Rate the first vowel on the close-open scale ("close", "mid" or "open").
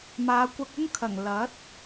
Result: open